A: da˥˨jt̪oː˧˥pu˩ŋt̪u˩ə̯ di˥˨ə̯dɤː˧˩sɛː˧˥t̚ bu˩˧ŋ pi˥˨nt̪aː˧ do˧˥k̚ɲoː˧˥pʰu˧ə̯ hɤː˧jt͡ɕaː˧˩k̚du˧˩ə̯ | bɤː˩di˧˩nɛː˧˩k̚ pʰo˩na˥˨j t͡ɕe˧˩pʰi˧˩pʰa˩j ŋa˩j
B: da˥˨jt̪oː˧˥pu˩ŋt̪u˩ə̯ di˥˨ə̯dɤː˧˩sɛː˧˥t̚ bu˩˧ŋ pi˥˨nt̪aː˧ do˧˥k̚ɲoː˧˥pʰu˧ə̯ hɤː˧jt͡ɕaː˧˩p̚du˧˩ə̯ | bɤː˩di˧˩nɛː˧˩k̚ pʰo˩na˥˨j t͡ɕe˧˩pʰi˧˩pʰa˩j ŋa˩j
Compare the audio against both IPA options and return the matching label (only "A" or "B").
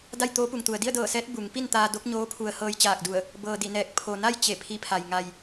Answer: A